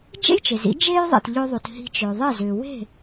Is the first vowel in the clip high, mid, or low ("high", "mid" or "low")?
mid